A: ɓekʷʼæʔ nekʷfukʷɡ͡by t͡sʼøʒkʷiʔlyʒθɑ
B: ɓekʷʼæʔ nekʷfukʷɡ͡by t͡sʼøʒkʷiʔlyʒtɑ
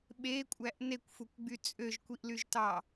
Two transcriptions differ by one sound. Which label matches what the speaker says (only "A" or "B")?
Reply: B